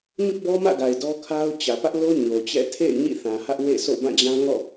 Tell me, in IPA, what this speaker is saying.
ɲ ʊ˦ ʔ b ɔ˦ m ä̰˦˨ ɡ a˨ ɪ̯ d ɔ˦ kʰ a˦ ʊ̯ t͡ɕ ä˨ p ä˦ ʔ l o˦ ɲ o˨ t͡ɕ ɛ̰˦˨ tʰ ḛ˦˨ ɪ̯ ɲ ḭ˦˨ θ ã˨ h ä˦ ʔ w ḛ˦˨ s o̰˦˨ b ã˦˨ d͡ʑ ã˦ ŋ ɔ̰˦˨

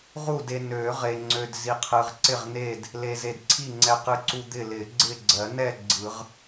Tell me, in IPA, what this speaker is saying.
ʁ u˥˨ d e˧ n ø˨˩˦ ʁ e˧ ŋ͡ǀ ø˧ d z i˧ qʰ ɯ˧ ʁ ǀ ɪ˥˨ ʁ n e˥˨ d | l e˧ z e˧ d ǀʰ i˥˨ ŋ͡ǀ ɛ˧ q ɯ˧ ǀ u˧ d̪ ɪ˥˨ l ɪ˨˩˦ ɡ͡ǀ ɪ˥˨ ɡ͡ǀ ɜ˨˩˦ n ɛ˥˨ ɡ͡ǀ ɯ˨˩˦ ʁ

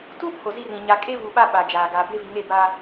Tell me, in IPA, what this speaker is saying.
t u˦ pʰ o˨ z i˦ r ĩ˨ ɲ a˨ kʼ e˦ v u˨ ɓ a˦ ɓ a˨ d͡ʒ aː˨ ɡ aː˨ b e˦ v i˨ ŋ e˦˨ b a˦

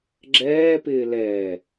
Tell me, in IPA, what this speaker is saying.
ɡ͡ǁ ɛː p ɪː l ɛ

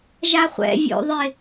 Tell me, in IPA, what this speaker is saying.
ʒ a χʷ ɛ̰ vʲ o̰ ðˤ ɪ

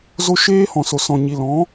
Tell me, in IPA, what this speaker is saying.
z o˧ ʃ eː˦ h ɔ̃˨ s o˨ s ɔ̃˨ ɲ i˨ l ɔ̃˨˦

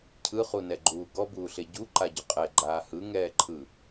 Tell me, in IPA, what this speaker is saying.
cʰ ɯ χ u n ɛ ɡ͡ǃ uː ɡ ɔ b uː ɬ e ɟ u ǃ a ɟ ʏ qʼ ɛ ɡ͡ǃ aː h ɯ ŋ ɛː ǃʰ ɯ

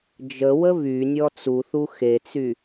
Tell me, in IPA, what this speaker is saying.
d͡ʒ ə w ə β y nʲ ɔ t͡s u θ u x e t͡s y

